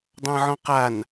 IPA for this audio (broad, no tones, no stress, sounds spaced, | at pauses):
dˤ ɑ̃ ʕ ɔ̃ q a n